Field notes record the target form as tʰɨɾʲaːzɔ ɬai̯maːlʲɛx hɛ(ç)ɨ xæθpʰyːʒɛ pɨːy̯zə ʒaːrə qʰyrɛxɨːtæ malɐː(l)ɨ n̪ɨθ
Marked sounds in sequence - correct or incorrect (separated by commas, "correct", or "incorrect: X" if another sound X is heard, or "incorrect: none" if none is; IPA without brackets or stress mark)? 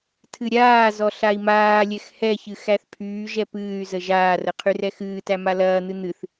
correct, incorrect: n̪